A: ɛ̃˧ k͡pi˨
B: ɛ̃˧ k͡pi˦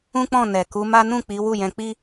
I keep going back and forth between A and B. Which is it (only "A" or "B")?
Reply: B